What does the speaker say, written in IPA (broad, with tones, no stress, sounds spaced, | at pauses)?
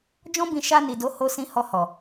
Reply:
d͡ʒ ɔ̃˦ b ĩ˧ ʃ a˧ n i˨ d o˨˦ h o˧ s ĩ˧ h ɔ˧ h ɔ˨